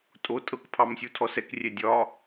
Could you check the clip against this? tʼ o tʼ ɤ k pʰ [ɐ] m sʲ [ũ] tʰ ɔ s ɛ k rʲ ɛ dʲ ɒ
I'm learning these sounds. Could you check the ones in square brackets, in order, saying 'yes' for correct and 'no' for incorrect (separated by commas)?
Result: no, no